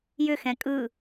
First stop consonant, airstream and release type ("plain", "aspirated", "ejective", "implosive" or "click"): ejective